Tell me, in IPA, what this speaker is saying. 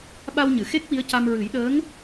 ɓa˧wɲɨ˨˩˨xe˦˥k̚ wi˧˥ə̯ca˧m ɹɨ˨˩˦jɗəː˧˥ŋ

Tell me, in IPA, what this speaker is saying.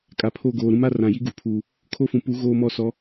kʼa˨pʰo˦˨ɡoː˨ ɾũ˦ma˦ rã˨ji˦ɡu˨pʰuː˨ | kʰo˦fũ˨ pu˨˦ ɣoː˦mɔ˦˨sɔ˨˦

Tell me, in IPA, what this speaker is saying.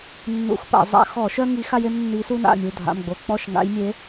nːṵ˧˩˧xpa̰˧˩˧ zˤa̰˧˩˧xɔ˧˩˧ʃœ˦ ŋi˨˦xa˦je˦m nːi˨˦su˦na̰˥˩ mʲu˩˧˩dʱa̰˩˧˩mɡ͡bo˩˧˩ k͡pɔ˥˩ʃ ŋa̰˨˦jmʲe˨˦

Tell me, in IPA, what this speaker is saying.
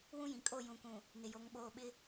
wũ˦jĩ˨kʼo˦˨ jũ˨kũ˨ | nɪ˨jo˨˦ŋ ɓoː˨ɓɪ˦

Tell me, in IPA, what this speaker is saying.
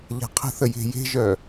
ʎa̤qʰə̤θə je̤je̤ʒœ

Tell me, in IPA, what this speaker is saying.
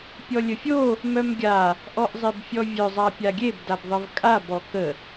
pʲɔlʲəfʲo | mœmɡʲa | ʔɔʔzˤebfʲɔvʲœ zˤapʲaɡʲeb dabðˤəvkʼa bɔkə

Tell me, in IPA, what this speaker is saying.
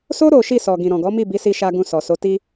so˦ ɾo˦ ʃi˦˨sɔ˨ ɡĩ˨ɾɔ̃˨ɡɔ˨˦ mi˦˨bi˨˦si˧ʃa˧ ɡũ˧ sɔ˨so˨˦ti˦

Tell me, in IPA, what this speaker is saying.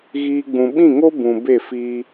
ɣiː˧ɡ͡bũ˨ ɓĩ˦˨ŋo˦ bũ˨ be˦˨ fiː˧

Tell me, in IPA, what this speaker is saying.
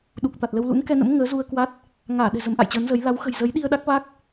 ɗu˨˩k̚t̪a˨˩t̚lə˧w lṵ˧˥nkɛ˧nə̰˧˥m ŋəː˨˦zu˧ə̯ kwa˦˥t̚ | ŋaː˧˩ɗɛ̤˨˩ zə˨˦mʔa̰˧˨jt͡ɕəː˨˦nzə˨˦j la˨˦wxə̤˨˩j zə˨˦jɗi˧ə̯ ɗa˦˥k̚va˦˥k̚

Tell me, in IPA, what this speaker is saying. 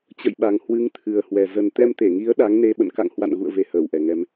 t͡ɕə̰˧˨jɓa˨˩ŋ hwɨ˨˦ŋt̪ʰɨ˨˩ə̯hwɛ˨˩ zə˨˩nt̪ɛ˧mt̪e˧˩ŋi˨˦ə̯ ɗa˨˦ŋne˧ ɓə̰˧˨nka̰˧˨ŋhwa̰˧˨n ɣṵ˧˨ə̯ ve˧həː˧˩wʔɛ˨˩ŋɛ˧m

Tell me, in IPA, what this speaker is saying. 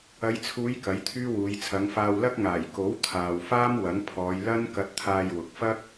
ɐ˨˧jt͡sʰuː˨˧j kɐ˨˥jt̪ʰyː˥wuː˨˧j t͡sʰɐ˨˧ŋ faː˧wlɐ˥k̚ ŋaː˨˩jko˨˥wt̪ʰaː˨w faː˥mwɐ˨˥ŋpʰɔː˨˧j lɐ˥n kɐ˧t̚t̪ʰaː˧jwʊ˨k̚ fɐ˥k̚

